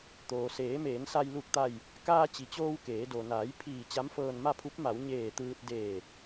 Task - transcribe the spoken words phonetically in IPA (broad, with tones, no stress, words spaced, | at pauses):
t̪oː˩seː˩˧meː˩˧nsa˧j lu˧˩k̚t̪a˧˩j | kaː˧t͡ɕi˩t͡ɕoː˧w keː˩˧do˩ naː˩˧j pʰiː˧˩ t͡ɕa˧˥mfɤː˧nma˥˨pʰu˧˥p̚ ma˩˧w ɲeː˧˩t̪ɯː˧t̚ deː˧˩